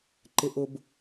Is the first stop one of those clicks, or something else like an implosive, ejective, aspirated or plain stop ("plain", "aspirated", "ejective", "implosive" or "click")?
click